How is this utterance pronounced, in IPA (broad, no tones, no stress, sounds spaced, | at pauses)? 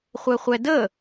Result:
χʷ ɛ χʷ ɛ d ə